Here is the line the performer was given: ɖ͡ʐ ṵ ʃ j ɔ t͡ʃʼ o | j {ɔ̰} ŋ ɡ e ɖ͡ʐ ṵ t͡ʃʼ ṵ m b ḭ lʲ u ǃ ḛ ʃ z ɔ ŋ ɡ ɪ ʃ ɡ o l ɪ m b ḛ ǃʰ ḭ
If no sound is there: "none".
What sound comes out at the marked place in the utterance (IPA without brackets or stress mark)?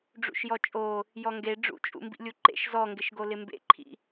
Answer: ɔ